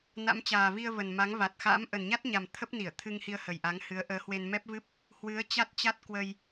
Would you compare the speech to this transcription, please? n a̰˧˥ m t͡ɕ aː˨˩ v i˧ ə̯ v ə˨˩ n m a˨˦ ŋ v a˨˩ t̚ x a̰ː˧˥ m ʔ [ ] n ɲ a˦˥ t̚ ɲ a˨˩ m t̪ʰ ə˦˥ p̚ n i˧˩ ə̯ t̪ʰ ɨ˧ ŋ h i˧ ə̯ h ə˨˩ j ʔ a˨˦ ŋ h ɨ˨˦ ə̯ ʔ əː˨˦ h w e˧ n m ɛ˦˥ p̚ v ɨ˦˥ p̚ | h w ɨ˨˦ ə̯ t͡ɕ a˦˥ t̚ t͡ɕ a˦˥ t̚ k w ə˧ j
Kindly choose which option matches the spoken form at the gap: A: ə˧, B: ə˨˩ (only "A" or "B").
B